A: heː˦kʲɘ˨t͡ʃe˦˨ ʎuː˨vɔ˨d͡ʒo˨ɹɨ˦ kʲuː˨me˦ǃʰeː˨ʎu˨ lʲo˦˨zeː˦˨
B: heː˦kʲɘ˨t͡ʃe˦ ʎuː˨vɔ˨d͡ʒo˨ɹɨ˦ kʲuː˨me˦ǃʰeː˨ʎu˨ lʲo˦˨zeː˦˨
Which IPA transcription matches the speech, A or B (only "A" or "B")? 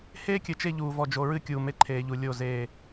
A